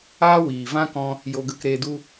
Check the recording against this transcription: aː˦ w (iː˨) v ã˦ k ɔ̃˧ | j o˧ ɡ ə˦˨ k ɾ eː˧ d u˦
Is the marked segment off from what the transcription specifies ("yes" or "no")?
no